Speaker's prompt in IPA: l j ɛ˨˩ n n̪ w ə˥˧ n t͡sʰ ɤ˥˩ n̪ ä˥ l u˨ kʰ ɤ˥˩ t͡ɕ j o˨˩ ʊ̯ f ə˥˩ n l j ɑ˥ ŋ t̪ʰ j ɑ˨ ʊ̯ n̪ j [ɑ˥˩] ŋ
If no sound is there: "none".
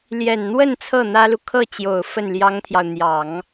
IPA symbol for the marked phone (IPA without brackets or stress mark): ɑ˨˩˦